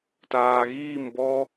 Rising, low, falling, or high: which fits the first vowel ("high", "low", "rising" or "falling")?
low